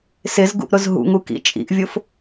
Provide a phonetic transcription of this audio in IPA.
sɪzɡṵʔ ɾʊzɦṵŋu kḭt͡ʃʼḭʔvʲʊf

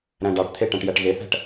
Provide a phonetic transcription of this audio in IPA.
ɾæ̃ɖɑʈt̪ʰe ʈæ̃ʈjæʈɣeθæ̤ʈ

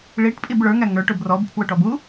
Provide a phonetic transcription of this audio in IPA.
ɭiʈpʼib ɭə˞ŋæ ŋə˞ʈʊb rɔbpʰwʊʈɔb u

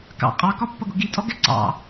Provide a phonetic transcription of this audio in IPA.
kɑ̰ qʼɑkɒpːʌɡʊ ɡitʼɔɡɛ ǀɑ̰

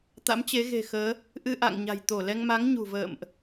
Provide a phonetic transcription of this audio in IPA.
t̪a̰˧˥mt͡ɕe˨˦ɣe̤˨˩xəː˨˦ | ʔɨ˧ʔa̰˧˨ŋɲa̤˨˩jt̪o˧˩ lɛ˧ŋma˨˦ŋ ɲṳ˨˩və̰ː˧˨mʔ

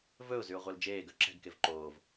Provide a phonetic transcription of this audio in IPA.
vɵʊ̯zyʊ̯ʁʷœl d͡ʒeːɡœ ǁɛ̤ɡkev ǃoːv

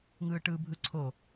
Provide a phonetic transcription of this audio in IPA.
ŋɯːʈɯːbʱɯǀʰo

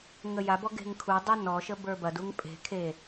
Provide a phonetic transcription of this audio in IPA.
ŋəjabɔ ɡe̤ŋkʰudˤu nɔʃə bə˞bɐduŋ pʼe̤ kʰe

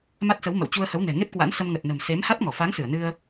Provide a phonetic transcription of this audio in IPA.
ma˦˥t̚sə˨˦wmə̰˧˨w t͡ɕu˧ə̯hə˨˦w nɛ̤˨˩ŋe˦˥p̚kwa̰˧˥n sə˧mŋə˨˩t̚nə̤˨˩m se˨˦mha˦˥t̚ŋɔ˧˩ fa˨˦ŋsɨ˧˩ə̯ nɨ˧ə̯

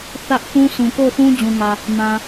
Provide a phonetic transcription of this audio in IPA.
θä˦ʔ θũ˦sʰũ˨ko˦˨ʊ̯θũ˦ d͡ʑũ˨ŋä˨ | mã˨

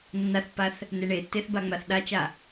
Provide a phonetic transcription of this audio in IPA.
nːaθpːaθ | neɳetːeθ baŋ͡maθɗat͡ʃa

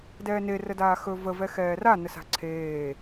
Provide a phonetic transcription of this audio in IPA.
dɛːne rədaːxɵ və vɛxɛːra nəsa̤ǀʰeː

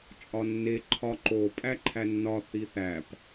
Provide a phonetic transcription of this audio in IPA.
t͡ʃʼɒnːe ǃʰɒǃo pʼæǃʰænːɒ θiθæp

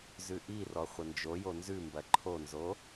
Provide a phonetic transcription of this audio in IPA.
zʉʔirɔ χʷənd͡ʒojo nzʉmbɐ ǃʰonzo

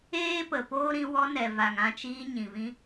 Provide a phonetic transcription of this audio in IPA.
eː˦ pə˨poː˦ ɾĩ˧ wɔ˧ nɛ˨va˨ŋ ã˧t͡ʃiː˧ ɲĩ˨vĩ˦

